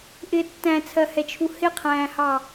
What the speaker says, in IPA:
ʔ ɪ tː æ̃ t͡sʰ ɜ h ɛ t͡ʃʰ u h ɪ qʰ æ̃ː h ɑ

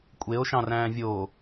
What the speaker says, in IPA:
kʷʼ e o̯ ʃ ɑ̃ r æ̃ː vʲ o

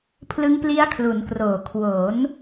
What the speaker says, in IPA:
pʰ l ɯ˦˥ ŋ p l i˦˥ a̯ kʰ l u˩˦ n k r oː˨˩ kʰ w o˩˦ n

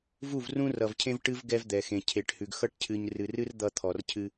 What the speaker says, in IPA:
v u˦˨ v r ũ˦ r ʌ˨ v cʰ ẽ˦ v ʈ ɨ˦ v ɡ ɛ˦ v d̪ ɛ˨ x ẽ˨ cʰ e˨ ʈ h ʉ˨ ɡ x ʌ˦ ʈ cʰ ɨ˨ ɲ r ɨ˨ r ɨ˦ r d̪ ʌ˦ t̪ʰ ɔ˨ r cʰ ɨ˦

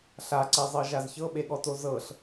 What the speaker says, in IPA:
ɬ a ǀ e zˤ ɤ ʒ a z ç ɤ ɓ e ɠ ɔ t o z ɤ ɬ

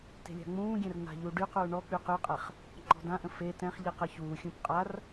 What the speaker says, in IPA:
t e̤ lʲ a̤ ŋ͡m ũː ɡʲ ɛ̃ r n̪ a̤ ʎ u ɖ y q uː ɳ ɔ k͡p y q y qʼ ɛ χ | ŋ͡ǃ ɔ̤ d ã ʔ ə̃ f e t ɛ̃ χ ʎ i q ə ç uː xʲ ũ p qʼ a r

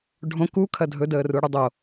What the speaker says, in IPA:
ɖʱ õ k u kʰ ɐ dʱ ɵ d əː r u ɽ u dˤ o

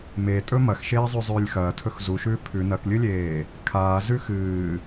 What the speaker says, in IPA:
m e tʼ ɵ m ɐ x ʃ eː zˤ ʉ zˤ ʉː lʲ x ɐː tʰ ɵ x z u ʃ ʉː pʰ ʉ n ɐ k lʲ ɨ lʲ eː | kʰ aː z ʉ x ɨː

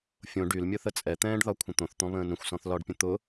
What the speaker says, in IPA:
fʲ õ ɖ y l mʲ ʊ θ ə t͡sʼ ɛ t̪ ɛ̃ː ɖ ð ɒ kʷʰ ə̃ t̪ õ θ t̪ ɔ̃ β ə̃ː n ə̃ xʷ s ɔ̃ θ l ɒ ɖ pʲ ə̃ t̪ ʊ

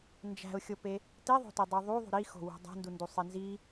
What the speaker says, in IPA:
n d͡ʒ æ̤ ʊ̯ xʲ o p e | t i ðˤ o̤ t i dˤ u ðˤ u ðˤ ṳ ɾ i x o̤ w ṳ dˤ æ̤ n d u n d u sˤ i n z i

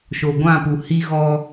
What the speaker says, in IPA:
ʃ o˨ ɡʷ ã˦˨ p u˨ h i˦ ɣ ɔ˦

